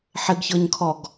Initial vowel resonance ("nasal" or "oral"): oral